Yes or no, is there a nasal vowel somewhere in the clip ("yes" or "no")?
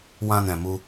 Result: yes